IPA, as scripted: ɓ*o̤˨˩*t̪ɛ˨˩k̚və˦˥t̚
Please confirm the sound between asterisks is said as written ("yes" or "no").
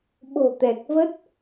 yes